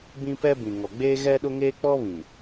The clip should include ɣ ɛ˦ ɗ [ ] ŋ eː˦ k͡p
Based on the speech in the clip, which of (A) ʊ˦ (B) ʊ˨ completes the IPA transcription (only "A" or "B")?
A